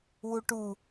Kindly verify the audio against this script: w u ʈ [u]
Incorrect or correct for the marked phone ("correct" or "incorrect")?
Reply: correct